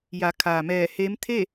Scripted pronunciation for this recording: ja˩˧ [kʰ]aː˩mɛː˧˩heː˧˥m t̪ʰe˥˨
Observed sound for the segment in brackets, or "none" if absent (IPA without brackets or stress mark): kʰ